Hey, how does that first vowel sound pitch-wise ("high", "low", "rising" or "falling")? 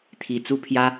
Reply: falling